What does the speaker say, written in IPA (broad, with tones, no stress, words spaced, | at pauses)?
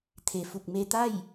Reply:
t̪ʰe˩ fu˧˩k̚me˧t̪a˥˨j